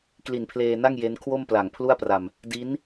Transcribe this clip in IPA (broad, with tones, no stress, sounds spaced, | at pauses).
k l i˨˩ n pʰ l eː˧ n a˥˩ ŋ j e˦˥ n kʰ w o˥˩ m p l a˨˩ ŋ pʰ l u˥˩ a̯ p r a˧ m | d i˦˥ n